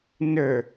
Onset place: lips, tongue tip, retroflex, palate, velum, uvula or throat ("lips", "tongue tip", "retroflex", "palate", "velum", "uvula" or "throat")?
tongue tip